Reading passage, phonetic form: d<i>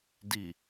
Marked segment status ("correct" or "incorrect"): correct